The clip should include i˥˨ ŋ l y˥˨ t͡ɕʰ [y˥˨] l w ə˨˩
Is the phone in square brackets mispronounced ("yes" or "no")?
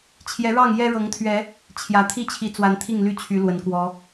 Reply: yes